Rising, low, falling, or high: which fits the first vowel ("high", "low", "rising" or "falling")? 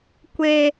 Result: high